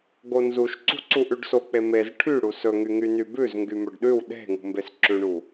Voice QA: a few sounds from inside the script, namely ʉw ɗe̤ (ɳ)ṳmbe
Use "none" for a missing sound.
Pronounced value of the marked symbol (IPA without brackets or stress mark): ŋ